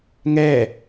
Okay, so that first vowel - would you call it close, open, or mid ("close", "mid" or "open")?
mid